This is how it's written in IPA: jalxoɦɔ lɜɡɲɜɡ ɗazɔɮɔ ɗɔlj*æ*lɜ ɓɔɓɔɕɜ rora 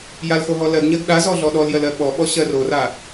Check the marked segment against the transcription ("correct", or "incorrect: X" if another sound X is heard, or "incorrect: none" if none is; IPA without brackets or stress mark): incorrect: ɜ